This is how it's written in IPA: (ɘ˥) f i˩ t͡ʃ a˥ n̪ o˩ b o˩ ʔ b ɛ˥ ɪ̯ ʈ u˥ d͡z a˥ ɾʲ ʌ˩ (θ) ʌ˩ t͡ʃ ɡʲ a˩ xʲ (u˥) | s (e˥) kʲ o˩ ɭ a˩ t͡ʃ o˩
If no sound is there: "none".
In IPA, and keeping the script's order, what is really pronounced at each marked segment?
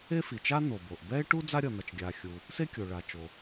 e˥, n̪, u˩, e˥

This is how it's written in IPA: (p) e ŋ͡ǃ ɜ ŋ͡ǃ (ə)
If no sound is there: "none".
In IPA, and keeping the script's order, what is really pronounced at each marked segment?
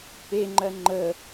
p, ə

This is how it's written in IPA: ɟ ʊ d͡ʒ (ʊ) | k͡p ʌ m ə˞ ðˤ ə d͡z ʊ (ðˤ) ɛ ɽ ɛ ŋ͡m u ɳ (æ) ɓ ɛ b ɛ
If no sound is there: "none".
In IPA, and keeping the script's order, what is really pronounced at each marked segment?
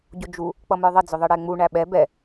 u, ðˤ, æ

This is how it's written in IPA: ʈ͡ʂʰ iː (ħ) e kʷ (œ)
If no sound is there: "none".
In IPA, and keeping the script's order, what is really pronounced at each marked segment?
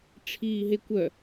ɦ, œ

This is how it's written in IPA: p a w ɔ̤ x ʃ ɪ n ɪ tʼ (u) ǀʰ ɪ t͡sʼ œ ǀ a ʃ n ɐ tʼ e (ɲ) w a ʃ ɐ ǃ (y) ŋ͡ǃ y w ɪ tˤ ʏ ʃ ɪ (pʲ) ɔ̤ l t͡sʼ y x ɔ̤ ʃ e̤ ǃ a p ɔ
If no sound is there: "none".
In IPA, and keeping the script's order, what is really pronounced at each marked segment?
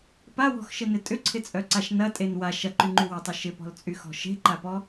ʏ, n, y, p

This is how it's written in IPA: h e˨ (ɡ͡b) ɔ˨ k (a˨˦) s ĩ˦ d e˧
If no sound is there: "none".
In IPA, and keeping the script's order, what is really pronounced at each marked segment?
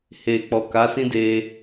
k͡p, a˨˦

